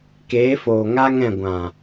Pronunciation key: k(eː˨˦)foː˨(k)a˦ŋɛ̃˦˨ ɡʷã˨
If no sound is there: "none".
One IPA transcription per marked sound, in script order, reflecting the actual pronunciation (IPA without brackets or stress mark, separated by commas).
eː˨˦, ŋ